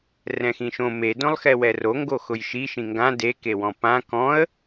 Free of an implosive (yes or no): yes